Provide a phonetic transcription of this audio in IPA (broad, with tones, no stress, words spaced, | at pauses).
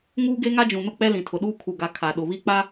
ŋuː˦ɡe˦ ŋa˦d͡ʒũ˨nʊ˦k͡pɛ˦ lĩ˨tʰʊ˨ɗuː˦ kʰu˨ɡa˨ kʰa˨ɗʊ˨βi˦k͡pa˦